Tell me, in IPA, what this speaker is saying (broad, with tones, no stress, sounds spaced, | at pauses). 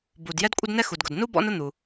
b u˩ d j ɛ˥ d kʷʼ ə˥ d n ɛ˥ x u˩ d ɡ ʊ˩ d n u˥ b ɔ̰˥ n ʊ˥ n̪ u˩